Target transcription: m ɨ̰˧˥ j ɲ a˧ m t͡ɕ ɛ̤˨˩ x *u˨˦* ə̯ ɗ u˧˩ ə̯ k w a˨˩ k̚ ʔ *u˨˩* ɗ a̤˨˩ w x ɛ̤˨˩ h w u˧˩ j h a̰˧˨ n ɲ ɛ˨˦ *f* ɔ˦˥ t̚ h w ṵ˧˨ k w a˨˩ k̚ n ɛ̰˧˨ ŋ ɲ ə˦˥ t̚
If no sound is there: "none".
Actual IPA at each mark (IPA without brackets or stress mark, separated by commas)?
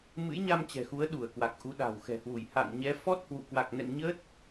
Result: u˨˦, u˨˦, f